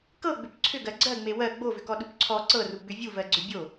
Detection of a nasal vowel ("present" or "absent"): absent